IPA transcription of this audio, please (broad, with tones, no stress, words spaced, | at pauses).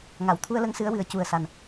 ŋa˨˩˨wt̪ʰu˧ə̯lə˧˥ŋ sɨ˧˥ə̯wɨ˨˩ə̯ cu˨˩ə̯ sa˨˩n